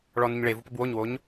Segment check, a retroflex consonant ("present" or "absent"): present